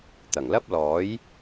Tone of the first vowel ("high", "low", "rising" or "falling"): low